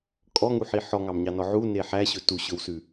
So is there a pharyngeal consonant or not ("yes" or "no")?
yes